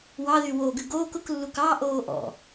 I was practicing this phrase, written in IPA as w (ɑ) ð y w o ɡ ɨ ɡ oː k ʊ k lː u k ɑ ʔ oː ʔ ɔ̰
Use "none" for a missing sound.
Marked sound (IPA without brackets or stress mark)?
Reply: ɑ